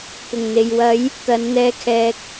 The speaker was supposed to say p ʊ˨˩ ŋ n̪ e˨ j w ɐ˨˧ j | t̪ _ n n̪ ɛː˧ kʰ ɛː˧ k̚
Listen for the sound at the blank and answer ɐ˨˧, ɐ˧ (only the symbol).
ɐ˨˧